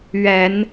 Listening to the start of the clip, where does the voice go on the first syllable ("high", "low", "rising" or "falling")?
low